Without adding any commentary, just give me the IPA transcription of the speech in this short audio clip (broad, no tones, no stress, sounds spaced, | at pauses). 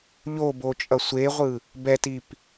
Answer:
ʎ o b o t͡ʃʼ ʌ sʷ e ʁʷ ɯ | b ɛ t i p